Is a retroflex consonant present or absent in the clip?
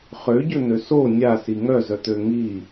absent